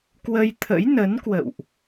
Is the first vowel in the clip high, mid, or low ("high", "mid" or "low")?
mid